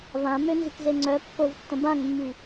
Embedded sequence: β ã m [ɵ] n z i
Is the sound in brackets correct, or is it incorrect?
incorrect